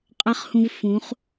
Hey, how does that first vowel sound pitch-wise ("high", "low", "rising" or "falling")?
high